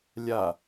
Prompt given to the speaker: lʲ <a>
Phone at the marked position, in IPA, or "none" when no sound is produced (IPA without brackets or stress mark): a